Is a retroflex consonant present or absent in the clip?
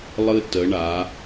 present